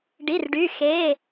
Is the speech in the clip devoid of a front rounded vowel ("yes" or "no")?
no